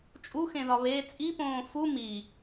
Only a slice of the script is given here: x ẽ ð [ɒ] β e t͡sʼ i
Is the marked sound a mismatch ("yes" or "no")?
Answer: no